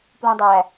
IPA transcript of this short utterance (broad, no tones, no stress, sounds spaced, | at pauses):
p l ũ dˤ æ